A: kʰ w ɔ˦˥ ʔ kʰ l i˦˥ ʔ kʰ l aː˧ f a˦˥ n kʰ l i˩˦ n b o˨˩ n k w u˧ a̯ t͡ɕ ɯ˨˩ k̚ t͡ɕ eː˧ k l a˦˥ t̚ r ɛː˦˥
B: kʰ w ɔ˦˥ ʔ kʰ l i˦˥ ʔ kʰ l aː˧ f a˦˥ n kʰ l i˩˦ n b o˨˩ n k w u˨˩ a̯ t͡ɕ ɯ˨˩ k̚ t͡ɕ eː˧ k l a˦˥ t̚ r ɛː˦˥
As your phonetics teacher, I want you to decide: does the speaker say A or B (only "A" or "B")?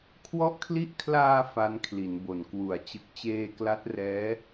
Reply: B